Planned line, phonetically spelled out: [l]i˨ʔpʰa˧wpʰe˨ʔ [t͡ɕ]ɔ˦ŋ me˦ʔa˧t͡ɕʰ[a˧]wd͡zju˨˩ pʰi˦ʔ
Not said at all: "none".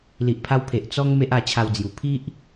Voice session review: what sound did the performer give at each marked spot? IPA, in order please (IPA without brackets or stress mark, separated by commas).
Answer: l, t͡s, a˧